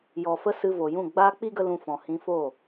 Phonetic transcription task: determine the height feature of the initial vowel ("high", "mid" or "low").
mid